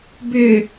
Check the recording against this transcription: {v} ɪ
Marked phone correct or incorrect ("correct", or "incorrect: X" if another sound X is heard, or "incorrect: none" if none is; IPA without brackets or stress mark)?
incorrect: b